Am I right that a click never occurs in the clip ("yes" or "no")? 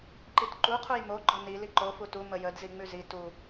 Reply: no